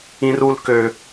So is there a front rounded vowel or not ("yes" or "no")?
yes